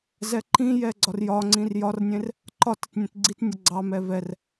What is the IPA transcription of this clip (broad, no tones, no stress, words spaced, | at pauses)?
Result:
zɛǃĩjɛ ɡ͡ǀɒrjɒŋ͡ǀĩr jɒrnʲẽr | ǃɒt ətnʲẽtɡ͡ǀitnʲə ɡ͡ǀɑmɛ vɛr